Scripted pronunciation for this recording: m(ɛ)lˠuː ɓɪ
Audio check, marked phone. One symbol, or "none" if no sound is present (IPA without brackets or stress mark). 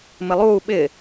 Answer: ɪ